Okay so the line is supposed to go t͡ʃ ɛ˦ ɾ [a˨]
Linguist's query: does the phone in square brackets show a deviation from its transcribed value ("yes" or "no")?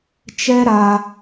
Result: yes